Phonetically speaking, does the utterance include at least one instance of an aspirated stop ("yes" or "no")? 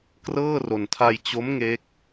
yes